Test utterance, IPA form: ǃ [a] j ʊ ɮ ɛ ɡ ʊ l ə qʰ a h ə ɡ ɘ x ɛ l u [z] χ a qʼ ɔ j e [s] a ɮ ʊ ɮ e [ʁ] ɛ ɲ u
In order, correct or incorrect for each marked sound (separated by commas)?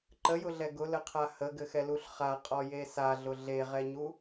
incorrect, incorrect, correct, correct